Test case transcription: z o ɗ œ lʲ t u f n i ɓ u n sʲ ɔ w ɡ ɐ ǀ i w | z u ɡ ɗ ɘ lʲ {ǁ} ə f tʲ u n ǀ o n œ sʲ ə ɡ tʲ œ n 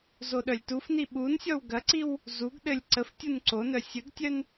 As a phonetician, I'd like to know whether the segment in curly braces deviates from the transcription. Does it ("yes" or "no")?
yes